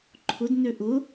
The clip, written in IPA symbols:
ǃʰ ʊ d n ø ʔ ʊ

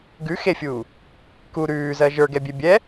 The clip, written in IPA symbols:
ɡ ʉ x e fʲ uː | k u ɾ ʉː z ɜ ʒ ə˞ ɡ ɛ bʲ e bʲ ɛ

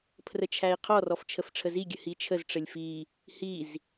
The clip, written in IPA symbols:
pʰ r ə t͡ʃʰ æ i̯ qʰ ɔ r ɔ f t͡ʃʰ ə f ʈ͡ʂʰ ə z i ɡʲ ə h i t͡ʃʰ ə z ʈ͡ʂ ə lʲ f i | h i z

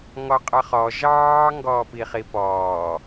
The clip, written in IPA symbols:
ŋ ɔ qʼ ʌ χ ɔ ʒ ɑː ŋ ɡ ɔː p i χ i p ɔː

